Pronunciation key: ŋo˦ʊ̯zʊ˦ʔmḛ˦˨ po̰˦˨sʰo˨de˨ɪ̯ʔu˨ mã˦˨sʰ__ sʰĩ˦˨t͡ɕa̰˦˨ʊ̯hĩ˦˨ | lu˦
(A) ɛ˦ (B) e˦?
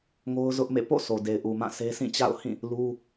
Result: B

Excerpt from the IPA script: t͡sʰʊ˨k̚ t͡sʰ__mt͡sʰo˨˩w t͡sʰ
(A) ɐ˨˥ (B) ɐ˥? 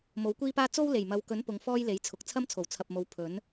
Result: B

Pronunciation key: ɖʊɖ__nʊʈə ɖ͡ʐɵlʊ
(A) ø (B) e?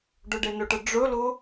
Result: B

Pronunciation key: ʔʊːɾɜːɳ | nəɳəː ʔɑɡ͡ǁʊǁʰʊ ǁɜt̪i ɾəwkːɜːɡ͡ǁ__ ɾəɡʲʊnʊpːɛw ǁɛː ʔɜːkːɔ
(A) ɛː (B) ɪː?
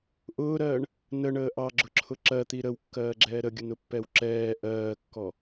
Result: A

